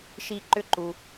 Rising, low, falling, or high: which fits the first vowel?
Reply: high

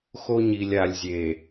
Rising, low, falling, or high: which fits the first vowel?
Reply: high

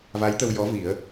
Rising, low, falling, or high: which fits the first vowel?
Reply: rising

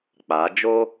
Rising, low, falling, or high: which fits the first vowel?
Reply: rising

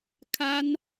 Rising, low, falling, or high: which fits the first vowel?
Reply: high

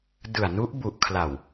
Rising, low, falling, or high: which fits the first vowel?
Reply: low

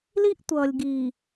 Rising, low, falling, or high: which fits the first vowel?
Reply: high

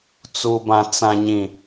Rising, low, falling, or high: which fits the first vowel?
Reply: low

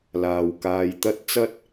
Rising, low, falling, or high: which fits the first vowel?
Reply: low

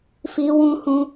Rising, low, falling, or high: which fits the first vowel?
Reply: high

